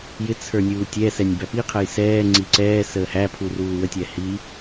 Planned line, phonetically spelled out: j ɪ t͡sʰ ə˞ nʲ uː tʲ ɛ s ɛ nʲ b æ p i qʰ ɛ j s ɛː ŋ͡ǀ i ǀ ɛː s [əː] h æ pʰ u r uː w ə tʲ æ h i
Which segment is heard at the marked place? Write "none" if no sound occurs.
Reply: əː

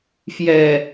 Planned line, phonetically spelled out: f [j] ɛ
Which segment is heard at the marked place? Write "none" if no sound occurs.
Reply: j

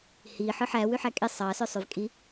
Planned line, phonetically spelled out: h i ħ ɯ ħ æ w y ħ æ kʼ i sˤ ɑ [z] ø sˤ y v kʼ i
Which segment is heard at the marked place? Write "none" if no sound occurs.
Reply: s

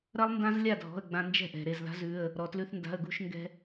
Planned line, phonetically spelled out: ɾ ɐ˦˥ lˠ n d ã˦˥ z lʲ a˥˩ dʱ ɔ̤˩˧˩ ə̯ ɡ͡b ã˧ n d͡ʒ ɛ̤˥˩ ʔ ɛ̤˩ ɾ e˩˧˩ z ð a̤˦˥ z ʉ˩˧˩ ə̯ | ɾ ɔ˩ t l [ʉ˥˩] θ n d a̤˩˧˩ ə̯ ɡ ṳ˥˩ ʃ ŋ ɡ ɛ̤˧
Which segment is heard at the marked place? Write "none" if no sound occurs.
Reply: ʉ˧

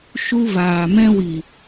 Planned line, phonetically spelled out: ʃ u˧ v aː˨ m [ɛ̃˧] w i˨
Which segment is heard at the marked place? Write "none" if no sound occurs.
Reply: ɛ̃˧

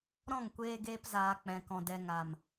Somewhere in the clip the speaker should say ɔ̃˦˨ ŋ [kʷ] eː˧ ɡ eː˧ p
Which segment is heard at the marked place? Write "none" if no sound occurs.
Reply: kʷ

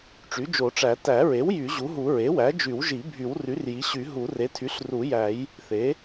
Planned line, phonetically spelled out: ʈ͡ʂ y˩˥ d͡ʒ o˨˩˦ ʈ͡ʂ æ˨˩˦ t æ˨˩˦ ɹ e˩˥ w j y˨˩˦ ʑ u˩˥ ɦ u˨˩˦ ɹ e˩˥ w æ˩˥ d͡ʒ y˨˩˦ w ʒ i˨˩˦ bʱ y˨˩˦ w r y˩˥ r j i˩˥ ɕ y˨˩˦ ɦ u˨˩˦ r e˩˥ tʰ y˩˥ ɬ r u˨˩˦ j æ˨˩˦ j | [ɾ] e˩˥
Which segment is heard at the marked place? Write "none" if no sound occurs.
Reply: θ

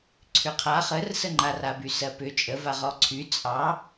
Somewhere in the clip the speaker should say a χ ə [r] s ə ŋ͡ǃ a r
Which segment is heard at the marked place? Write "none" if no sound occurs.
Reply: r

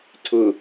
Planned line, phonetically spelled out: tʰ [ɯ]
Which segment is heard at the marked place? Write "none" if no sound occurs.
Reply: ʊ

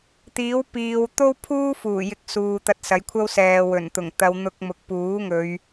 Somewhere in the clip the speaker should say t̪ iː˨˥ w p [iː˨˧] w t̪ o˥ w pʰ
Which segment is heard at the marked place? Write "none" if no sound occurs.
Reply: iː˨˧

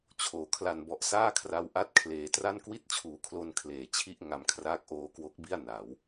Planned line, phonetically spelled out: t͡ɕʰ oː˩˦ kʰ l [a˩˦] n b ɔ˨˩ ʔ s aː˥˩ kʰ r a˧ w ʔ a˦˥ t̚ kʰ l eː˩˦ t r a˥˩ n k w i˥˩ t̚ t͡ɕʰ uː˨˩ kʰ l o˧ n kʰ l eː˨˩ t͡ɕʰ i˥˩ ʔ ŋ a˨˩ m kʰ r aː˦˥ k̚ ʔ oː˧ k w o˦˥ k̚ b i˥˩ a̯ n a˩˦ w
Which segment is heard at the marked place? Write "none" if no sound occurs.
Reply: a˨˩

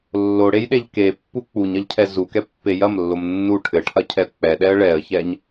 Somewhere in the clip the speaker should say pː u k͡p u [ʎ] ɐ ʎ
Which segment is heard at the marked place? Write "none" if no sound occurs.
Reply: ɲ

